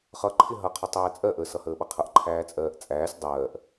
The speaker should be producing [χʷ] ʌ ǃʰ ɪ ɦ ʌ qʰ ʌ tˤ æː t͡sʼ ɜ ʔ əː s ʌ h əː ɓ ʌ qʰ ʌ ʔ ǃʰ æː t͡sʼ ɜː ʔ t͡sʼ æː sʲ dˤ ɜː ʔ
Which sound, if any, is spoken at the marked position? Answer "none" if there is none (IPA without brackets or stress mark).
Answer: χ